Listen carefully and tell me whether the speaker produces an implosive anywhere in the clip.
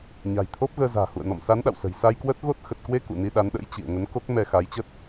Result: yes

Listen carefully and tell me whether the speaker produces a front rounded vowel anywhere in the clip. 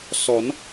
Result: no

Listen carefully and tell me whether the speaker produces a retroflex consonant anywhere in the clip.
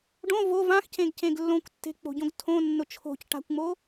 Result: yes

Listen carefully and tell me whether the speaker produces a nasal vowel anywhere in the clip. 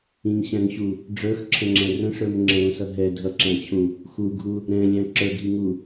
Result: yes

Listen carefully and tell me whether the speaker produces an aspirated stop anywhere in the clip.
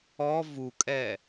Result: no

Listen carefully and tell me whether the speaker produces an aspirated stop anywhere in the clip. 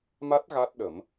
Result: no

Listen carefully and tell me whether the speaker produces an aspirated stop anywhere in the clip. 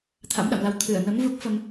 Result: yes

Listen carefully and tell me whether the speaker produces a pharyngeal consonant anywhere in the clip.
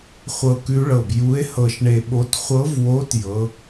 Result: no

